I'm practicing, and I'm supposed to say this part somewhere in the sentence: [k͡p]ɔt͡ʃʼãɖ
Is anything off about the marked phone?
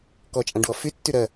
yes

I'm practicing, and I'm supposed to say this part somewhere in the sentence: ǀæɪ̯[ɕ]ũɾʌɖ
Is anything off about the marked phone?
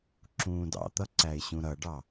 no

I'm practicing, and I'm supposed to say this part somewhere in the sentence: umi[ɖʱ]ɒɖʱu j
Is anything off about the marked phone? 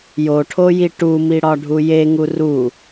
yes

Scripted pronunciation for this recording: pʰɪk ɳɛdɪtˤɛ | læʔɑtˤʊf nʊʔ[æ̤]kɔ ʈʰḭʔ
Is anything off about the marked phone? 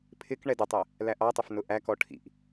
yes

